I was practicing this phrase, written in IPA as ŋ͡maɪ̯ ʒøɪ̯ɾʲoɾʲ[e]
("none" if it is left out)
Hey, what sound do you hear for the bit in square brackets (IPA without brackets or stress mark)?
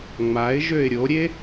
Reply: e